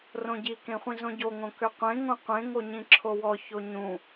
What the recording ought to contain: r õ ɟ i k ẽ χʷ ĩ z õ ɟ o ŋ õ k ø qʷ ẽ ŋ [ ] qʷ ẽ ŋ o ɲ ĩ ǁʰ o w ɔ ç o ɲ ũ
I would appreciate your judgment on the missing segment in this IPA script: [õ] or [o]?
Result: õ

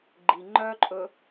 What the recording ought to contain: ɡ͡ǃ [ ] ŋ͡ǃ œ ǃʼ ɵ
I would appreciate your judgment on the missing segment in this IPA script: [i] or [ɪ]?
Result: i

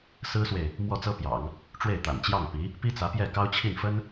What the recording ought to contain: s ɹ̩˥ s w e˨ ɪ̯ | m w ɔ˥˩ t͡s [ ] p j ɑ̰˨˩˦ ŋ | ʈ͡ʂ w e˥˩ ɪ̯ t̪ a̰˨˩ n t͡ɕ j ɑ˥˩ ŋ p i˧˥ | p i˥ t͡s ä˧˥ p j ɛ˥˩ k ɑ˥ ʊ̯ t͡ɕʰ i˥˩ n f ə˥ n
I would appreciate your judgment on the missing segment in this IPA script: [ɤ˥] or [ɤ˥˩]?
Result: ɤ˥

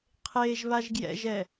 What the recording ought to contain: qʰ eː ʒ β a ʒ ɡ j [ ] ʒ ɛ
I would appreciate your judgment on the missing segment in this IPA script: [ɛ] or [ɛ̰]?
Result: ɛ̰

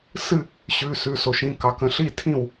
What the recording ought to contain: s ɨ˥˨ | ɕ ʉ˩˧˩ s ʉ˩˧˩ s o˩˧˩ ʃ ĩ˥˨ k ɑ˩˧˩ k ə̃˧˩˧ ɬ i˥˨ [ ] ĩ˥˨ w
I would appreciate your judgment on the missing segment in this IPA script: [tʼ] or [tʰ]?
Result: tʰ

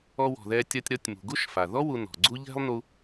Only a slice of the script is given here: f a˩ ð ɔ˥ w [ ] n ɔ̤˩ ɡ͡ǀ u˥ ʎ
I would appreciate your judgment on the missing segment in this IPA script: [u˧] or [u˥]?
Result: u˧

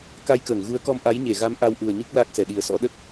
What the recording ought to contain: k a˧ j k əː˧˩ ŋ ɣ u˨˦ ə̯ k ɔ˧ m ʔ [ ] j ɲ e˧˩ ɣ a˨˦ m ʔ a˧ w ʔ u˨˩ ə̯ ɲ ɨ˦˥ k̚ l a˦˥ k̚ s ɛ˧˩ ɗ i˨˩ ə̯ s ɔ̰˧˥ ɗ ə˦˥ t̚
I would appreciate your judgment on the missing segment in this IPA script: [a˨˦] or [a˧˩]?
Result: a˨˦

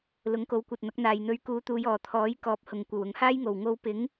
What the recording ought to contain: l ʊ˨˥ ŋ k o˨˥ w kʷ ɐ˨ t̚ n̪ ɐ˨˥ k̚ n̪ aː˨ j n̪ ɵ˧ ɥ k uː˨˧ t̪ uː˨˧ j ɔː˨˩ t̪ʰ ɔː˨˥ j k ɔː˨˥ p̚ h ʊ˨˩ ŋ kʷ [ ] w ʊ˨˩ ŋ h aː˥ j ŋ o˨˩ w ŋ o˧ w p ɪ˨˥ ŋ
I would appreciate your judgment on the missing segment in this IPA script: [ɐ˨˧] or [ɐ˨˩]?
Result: ɐ˨˩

